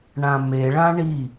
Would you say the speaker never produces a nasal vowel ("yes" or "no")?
no